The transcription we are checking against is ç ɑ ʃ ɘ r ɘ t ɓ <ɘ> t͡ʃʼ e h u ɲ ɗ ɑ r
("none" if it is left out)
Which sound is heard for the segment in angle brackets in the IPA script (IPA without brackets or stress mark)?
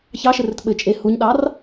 ɘ